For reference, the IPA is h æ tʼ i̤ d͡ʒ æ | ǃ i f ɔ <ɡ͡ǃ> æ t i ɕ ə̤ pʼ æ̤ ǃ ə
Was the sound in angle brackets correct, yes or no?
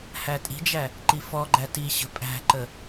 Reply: yes